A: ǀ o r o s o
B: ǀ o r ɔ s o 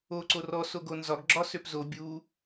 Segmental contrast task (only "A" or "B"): B